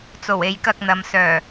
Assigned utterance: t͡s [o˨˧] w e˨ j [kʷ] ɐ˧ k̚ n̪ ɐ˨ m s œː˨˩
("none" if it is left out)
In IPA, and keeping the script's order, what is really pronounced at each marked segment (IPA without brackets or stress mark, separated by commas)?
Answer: o˨˩, k